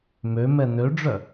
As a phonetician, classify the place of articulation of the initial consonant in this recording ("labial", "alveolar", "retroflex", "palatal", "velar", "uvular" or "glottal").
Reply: labial